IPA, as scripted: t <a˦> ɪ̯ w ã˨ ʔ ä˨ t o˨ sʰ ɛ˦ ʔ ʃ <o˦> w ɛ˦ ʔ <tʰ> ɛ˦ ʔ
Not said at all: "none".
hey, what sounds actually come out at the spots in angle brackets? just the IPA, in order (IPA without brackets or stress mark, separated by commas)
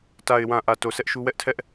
a˨, u˦, tʰ